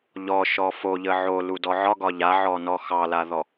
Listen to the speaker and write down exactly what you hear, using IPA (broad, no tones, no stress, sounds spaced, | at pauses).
ʎ ɔ ʃ ɔ f o ʎ ə ʕ o l u d ɔ ʕ ɒ ɡ ɒ ʎ a ʕ ɔ n ɔ x ɑ l a ð ɔ